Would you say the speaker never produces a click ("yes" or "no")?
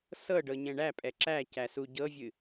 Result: no